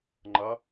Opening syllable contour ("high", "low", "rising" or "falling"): rising